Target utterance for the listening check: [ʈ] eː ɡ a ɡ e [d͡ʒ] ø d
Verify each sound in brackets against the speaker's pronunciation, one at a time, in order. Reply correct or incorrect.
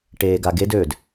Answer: correct, incorrect: d

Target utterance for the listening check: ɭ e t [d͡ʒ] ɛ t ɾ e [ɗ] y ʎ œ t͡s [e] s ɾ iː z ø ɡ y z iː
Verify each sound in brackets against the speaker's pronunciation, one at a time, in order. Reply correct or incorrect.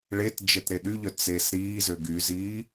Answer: correct, correct, correct

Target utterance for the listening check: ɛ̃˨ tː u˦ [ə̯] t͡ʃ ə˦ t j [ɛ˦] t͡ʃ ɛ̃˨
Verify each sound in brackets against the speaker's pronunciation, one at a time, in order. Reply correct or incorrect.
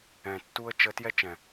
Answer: correct, correct

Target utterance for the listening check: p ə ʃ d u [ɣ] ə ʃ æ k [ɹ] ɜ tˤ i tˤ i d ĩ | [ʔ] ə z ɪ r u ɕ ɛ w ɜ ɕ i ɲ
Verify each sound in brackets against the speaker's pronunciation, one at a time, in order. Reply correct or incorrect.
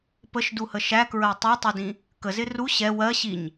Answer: incorrect: h, correct, incorrect: k

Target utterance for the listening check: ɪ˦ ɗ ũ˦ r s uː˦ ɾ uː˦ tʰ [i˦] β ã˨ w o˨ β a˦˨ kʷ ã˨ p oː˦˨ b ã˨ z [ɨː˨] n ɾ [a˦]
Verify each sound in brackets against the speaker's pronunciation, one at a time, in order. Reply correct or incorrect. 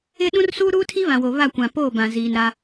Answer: correct, incorrect: iː˨, correct

